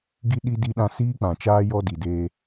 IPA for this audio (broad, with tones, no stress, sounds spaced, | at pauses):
ɡ i˦ ɗ i˦ d i˦ ɗ ã˦ s iː˦ k͡p ã˨ t͡ʃ aː˦ j ɔ˦ d i˨ d eː˦